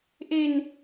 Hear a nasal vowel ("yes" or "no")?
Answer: no